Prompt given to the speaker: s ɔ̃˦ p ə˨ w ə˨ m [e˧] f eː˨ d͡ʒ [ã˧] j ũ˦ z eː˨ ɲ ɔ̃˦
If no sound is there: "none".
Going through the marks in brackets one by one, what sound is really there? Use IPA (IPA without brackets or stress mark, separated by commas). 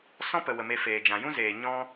e˧, ã˨